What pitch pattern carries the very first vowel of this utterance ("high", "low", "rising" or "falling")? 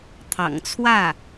low